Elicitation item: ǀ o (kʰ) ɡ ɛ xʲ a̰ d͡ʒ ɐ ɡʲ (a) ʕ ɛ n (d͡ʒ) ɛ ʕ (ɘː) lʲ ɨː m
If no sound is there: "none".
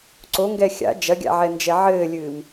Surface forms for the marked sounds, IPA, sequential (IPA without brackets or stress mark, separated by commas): ŋ, a̰, d͡ʒ, ɘː